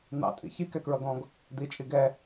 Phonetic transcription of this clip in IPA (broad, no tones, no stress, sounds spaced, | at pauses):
n̪ ɑ̰ tʼ ḭ ç i k ɛ k ɹ ʌ ɡ ɔ̃ ɡ | d̪ i t͡ʃʼ i ɡ ɛ